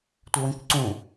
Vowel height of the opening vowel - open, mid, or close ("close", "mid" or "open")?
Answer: mid